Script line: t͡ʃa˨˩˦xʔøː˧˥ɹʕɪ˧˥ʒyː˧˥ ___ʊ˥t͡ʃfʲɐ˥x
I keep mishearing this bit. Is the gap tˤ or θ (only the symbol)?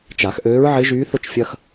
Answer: θ